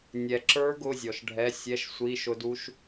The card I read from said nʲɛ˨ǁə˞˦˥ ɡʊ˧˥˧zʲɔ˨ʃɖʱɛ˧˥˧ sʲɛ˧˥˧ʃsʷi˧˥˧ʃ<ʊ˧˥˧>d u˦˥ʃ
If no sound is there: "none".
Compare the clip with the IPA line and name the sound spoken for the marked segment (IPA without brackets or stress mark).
ʊ˦˥